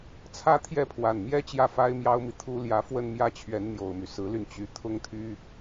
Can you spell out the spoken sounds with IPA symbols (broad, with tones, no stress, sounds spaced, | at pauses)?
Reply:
t͡sʰ ä˥ t̪ʰ j ɛ˥˩ pʰ w a˨˩ n m j ɛ˥ t͡ɕ j ä˥˩ f a˥ ɪ̯ m j ɑ˥ ʊ̯ m i˨ t̪ʰ u˥ l j ä˧˥ f w ə˥˧ n m j ä˥˩ t͡ɕʰ ɥ ɛ˧˥ n n̪ j o˨˩ ʊ̯ m y˦ s ɹ̩˧˥ l y˧ n t͡ɕ y˧˥ t̪ʰ ʊ˥ ŋ t̪ʰ y˥